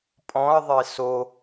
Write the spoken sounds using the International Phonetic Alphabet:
pʼ ɔ̃ ɐ̯ ðˤ e s o

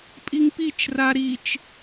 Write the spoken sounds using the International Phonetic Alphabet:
pʼ i ŋ p i t͡ʃ r a ɾ i t͡ʃ

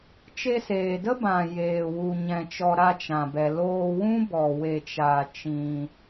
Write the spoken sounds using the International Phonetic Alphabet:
t͡ʃ e˧ s eː˨ d ə˦ b ã˨ j eː˨ w u˨ ɲ ɛ̃˧ t͡ʃ ɔ˧ ɾ a˧ t͡ʃ ã˨ b ɛ˨ l oː˧ w ũ˦ b ɔ˨ w e˧ t͡ʃ aː˧ t͡ʃ ĩ˧

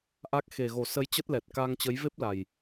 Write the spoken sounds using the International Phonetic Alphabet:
ʔ a˦˥ k̚ x e˨˩ ɣ o˨˩ s ə˨˦ j t͡ɕ ə˦˥ t̚ l ɛ˨˩ t̚ k a˧ ŋ t͡ɕ ə˨˦ j v e˦˥ p̚ l a˨˩ j

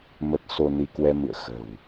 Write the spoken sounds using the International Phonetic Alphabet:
m ə˦˥ t̚ s o˧ n i˧ k w ɛ˧ m ɨ̰˧˨ ə̯ x ə̤˨˩ w

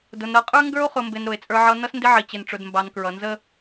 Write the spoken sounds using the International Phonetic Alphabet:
d ʊ˨ n ɾ ʌ˨ qʼ ə˞˦ ŋ ɡ ə˞˦ o̯ χ ʊ˨ m b ɪ˨ n ɾ ʊ˨ e̯ t͡sʼ ə˞˦ ʕ ʌ˦ n ʌ˦ s n d ɪ˦ ʕ i˨ t͡ɕ ɪ˨ n ʈ͡ʂ ʊ˨ d m b ɑ˨ n k ɹ ʌ˨ n z ə˦

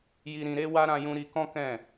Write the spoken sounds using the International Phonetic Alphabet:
j i˧ ɾ ĩ˧ ɾ e˧ w a˧ ɾ ã˧ j ũ˧ ɾ i˧ k ɔ̃˦ k ɛ̃˦˨

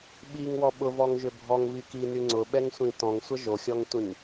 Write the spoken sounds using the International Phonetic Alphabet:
ɓ i ŋ w ɔ ɓ ʊ v ɔ ŋ ʒ ʏ bʱ ɔ ŋ v i k i n y ŋ͡ǀ ʊ ɓ ɛ ŋ sʷ ĩ t ɔ̃ ŋ sʷ ə ʒ o xʲ ɔ ŋ tʷ ĩ ŋ

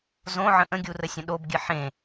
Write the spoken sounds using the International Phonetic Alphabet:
z õ ʕ ə̃ ʔ ə̃ ɡʲ u r ə sʲ ə̃ ɗ o b ɡʲ ɨ ħ ẽ

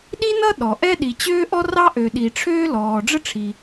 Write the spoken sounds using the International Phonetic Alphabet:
ɗ i˥ n ʌ˥ ɗ ɔ˩ ʔ ɛ˥ ɗ i˨ t͡ɕ øː˥ ʔ ɔ˥ r ɑ˥ ʔ ø˨ ɗ i˨ ʈ͡ʂʰ øː˥ l ɔː˨ ɖ͡ʐ ə˥ ʈ͡ʂʰ i˨

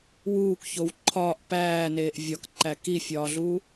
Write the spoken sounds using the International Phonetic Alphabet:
w uː k ç o w ǃʰ ɒː ʔ p æː n eː ʔ vʲ ɒ k ǃ æ k i fʲ ɒː ɮ u

